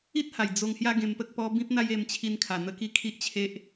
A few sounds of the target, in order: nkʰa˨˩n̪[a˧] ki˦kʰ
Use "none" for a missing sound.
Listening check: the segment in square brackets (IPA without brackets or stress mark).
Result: ə˧